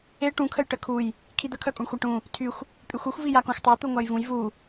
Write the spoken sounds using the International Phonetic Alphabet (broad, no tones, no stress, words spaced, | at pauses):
e ʈũkʰəj ʈəkʰuj | kʰid̪əkʰœkʼoɳ xʷaʈũ | tʰyxʷ | pʼyxʷyxʷ vijakõxʷtˤe t̪uŋʷajvũj vu